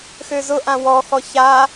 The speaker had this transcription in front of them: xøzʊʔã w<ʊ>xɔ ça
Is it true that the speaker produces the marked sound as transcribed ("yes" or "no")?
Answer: no